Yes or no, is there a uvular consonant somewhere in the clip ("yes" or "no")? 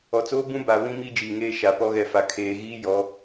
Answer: no